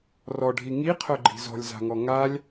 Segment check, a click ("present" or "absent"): present